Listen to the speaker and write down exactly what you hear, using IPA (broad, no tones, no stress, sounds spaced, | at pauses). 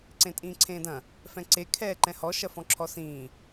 ǀ ẽ tʼ ĩː ǀʰ ẽː d ɐ̃ | f ɛ̃ ǀ e kʰ ɛː ǃ ɛ̃ h ɔ ʃ ɐ f ɔ̃ ǁʰ ɔ s ĩː